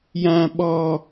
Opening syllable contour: low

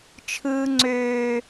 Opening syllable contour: high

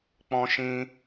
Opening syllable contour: high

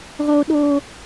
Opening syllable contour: high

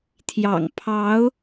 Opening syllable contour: low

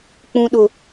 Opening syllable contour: low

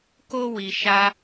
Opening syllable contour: high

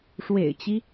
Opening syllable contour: low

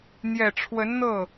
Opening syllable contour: low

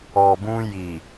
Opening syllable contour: low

